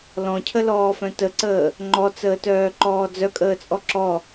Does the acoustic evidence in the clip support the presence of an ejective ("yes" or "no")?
yes